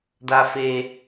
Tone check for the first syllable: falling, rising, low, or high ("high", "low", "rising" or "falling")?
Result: high